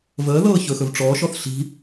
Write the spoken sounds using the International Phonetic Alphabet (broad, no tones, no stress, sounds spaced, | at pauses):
v əː ð ɤː ç ɵ x ɵ v ʈ͡ʂ ɔː ʃ ɔ θ ɬ i̤